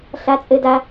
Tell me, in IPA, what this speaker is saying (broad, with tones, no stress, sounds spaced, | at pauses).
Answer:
ɬ a˥ t͡sʼ ɘ˥ d a˥